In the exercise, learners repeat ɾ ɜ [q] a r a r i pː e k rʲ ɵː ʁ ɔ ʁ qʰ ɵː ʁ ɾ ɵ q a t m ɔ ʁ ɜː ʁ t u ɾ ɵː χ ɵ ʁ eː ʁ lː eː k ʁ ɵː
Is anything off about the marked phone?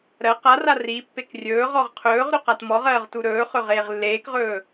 no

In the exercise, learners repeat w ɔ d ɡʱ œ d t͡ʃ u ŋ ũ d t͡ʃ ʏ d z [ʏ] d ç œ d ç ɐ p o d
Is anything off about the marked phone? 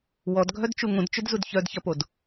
yes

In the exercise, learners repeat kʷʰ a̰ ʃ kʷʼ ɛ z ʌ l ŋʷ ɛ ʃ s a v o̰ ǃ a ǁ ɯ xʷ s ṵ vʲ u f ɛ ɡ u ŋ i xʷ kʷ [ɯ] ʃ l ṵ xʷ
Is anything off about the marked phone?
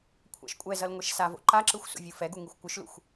no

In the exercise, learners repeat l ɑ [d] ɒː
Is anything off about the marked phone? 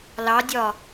yes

